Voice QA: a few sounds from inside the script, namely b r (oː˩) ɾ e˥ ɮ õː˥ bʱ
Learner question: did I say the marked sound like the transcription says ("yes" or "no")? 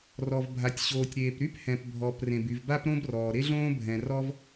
no